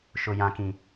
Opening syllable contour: high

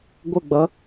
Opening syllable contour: falling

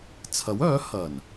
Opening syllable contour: rising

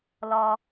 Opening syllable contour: low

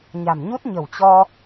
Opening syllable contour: low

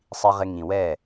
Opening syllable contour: low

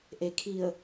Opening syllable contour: low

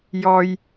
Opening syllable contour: low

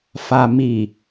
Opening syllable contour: low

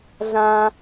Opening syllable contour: high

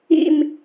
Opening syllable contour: falling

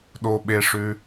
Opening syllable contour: low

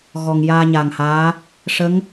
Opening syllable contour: low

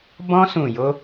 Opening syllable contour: high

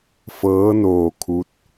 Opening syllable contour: rising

